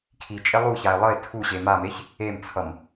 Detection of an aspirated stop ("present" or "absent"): present